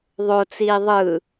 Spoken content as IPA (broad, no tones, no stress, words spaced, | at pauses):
ðˤot͡siː ðˤɯ